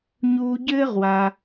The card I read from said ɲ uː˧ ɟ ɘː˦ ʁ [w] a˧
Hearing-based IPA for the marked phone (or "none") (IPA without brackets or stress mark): w